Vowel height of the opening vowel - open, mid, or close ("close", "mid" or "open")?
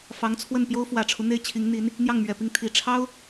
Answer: open